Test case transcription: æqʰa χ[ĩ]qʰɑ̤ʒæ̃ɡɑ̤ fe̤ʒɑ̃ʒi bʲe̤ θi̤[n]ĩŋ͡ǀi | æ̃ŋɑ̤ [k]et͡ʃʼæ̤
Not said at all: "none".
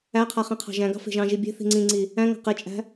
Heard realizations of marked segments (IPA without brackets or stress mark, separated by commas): ĩ, ŋ͡ǀ, q